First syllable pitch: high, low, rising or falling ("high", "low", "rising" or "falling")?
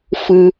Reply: high